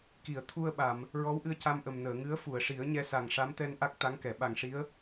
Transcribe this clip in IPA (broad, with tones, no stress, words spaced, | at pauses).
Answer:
ki˨˩˨ə̯t̪ʰu˧ə̯ɓa˨˩˨m | ɹɔ˧˥wʔɨ˧ə̯ ca˧mʔə˨˩m nəː˨˩˨ŋɨ˧˥ə̯fu˨˩˨ə̯ʂi˨˩˦ə̯ ɲɛ˧sa˨˩ŋʂa˧˥mt̪ɛ˧n ʔa˦˥k̚t̪a˧˥ŋkɛ˨˩˨ ɓa˨˩ŋʂi˧˥ə̯